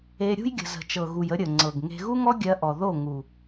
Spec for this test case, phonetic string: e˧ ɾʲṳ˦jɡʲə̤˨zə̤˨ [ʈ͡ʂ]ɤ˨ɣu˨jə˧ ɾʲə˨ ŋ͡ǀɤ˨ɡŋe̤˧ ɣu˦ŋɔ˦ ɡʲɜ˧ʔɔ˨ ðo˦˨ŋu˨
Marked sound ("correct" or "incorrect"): incorrect